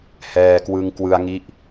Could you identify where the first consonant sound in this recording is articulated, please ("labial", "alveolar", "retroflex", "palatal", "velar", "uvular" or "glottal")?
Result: glottal